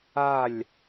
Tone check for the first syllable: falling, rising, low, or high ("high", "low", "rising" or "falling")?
falling